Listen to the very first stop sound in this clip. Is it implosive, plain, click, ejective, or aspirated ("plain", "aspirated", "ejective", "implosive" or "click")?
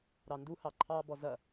plain